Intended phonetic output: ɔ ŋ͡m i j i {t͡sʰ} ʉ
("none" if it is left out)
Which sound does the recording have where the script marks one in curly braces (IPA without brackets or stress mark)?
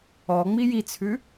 t͡sʰ